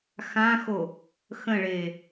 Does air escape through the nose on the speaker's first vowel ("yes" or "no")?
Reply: yes